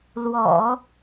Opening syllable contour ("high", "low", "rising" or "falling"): low